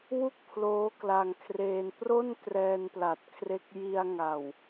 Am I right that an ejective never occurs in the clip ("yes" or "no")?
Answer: yes